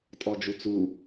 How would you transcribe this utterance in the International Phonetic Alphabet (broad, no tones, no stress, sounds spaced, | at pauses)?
tʼ ɔ d͡ʒ u t͡s u